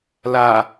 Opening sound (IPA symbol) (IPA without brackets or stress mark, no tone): l